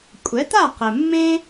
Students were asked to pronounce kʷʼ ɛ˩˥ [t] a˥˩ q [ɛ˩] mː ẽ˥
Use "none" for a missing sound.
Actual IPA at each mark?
t, ɘ˩

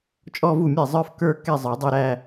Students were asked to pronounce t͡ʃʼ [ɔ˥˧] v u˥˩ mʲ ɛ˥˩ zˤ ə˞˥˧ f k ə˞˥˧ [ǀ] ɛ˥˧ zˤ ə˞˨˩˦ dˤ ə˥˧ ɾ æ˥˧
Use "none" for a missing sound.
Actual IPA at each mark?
ɔ˥˧, k

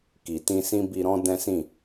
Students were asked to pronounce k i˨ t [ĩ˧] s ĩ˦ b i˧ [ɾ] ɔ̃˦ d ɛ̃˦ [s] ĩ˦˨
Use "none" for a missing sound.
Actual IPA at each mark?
ĩ˧, ɾ, s

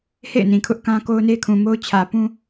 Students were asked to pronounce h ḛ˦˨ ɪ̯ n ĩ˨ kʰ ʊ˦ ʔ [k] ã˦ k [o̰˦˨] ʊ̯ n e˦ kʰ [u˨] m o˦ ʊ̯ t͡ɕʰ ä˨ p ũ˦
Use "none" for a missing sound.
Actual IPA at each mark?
k, o˦, ũ˨

